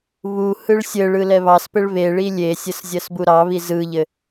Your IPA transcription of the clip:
β u h ɯ ɭ sʲ ɘ ɭ ɯ l ɛ β ɑ s p ɘ ɭ β e ɭ i lʲ e sʲ ɘ s zʲ ɜ s b u ɾ ɑ β i z ɯ ʎ ɘ

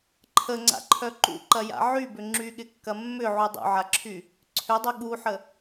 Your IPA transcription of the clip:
ǃʰ ə ŋ͡ǀ a̰ ǃʰ œ ǃ ṵ ǃ ɐ j a̰ ʕ y b ʏ ŋ͡ǁ y ɠ ɪ kː ɐ mː ʏ ʕ u dˤ ṵ ʕ a ǁʰ y | ǀʰ ʏ dˤ ʏ ɠ u ħ ə

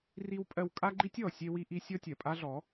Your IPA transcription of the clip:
r i˧ w pʼ ɜ˧ w kʼ a˦ ɡ͡ǃ i˦ tʲ ɔ˨ sʲ e˦ w i˦ ʔ i˦ sʲ ɔ˦ tʲ ɜ˨ pʼ a˦ ɮ ɔ˨˦

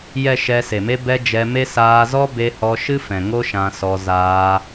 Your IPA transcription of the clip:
j ɛ˨ ʃ ɛ˧ s e˨ m e˦ b ɛ˧ d͡ʒ ɛ˧ m e˦ s aː˧ z ɔ˦ b e˧ h ɔ˧ ʃ ɨ˦ f ɛ̃˨ ŋ o˦ ʃ ã˧ s ɔ˧ z aː˧

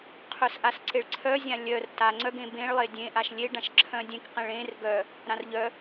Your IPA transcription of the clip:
qʰ œ s ʔ a s ǀ e ɭ ǀʰ œ zʲ ã lʲ œ r t a ŋ͡ǀ œ ɡ ẽ b ẽ ɭ lˠ e dʲ ẽ ʔ a ʃ lʲ e ɖ ã ʃ ǁʰ œ̃ dʲ ẽ k q ẽ ɭ ẽ r ɡ œ | ɾ ã r ʎ œ

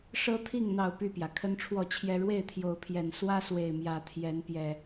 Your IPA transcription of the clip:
ʂ ɤ˦ t̪ʰ i˥˨ ŋ n̪ ɑ˥˨ ʊ̯ p y˥˨ p j ä˩ kʰ ə˦ n ʈ͡ʂʰ w ɔ˥˨ t͡ɕʰ j ɛ˦ ɻ w e˥˨ ɪ̯ t̪ʰ j o˨˦ ʊ̯ pʰ j ɛ˨˩ n s w ä˦ s w e˨˩ ɪ̯ m j ä˨˦ t̪ʰ j ɛ˨˦ n p j ɛ˨˩

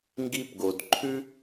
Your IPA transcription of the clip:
ŋ ɡ i˥ p ɡ o˩ d ǃʰ ʉ˥

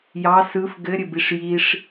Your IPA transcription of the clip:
j ɑ s ɯ f ɡ ɘ ɾʲ ɘ b i ʂ j i ʂ

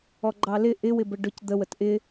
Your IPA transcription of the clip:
ɔ ɡ͡ǃ ɑ l ɪ ʔ ɪ w ɪ b ə ɖ ʊ c d̪ ə w ə t ʔ ɪ

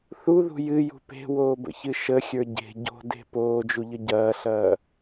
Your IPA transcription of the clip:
θ u ð ṳ j ɨ j ṳ p e̤ w oː b ə̰ ç ɨ ʃ ə xʲ ə˞ ɟ e̤ ɟ o̤ d e̤ p oː d͡ʒ u ʎ ə ɟ ɐː ɬ ɐː

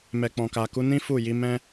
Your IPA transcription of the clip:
m ɛ˨ k͡p ɔ̃˨ k a˨ k u˨˦ n ĩ˦ f u˦˨ j i˨˦ m ɛ̃˦

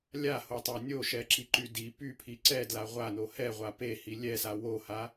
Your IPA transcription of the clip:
lʲ a h o tˤ a nʲ o ʃ ɛ ǁ i ǃ y d i p y pʰ i ǀ ɛ d l a ʁʷ a n o h ɛ ʁʷ a p e h i lʲ ɛ s a w o h a

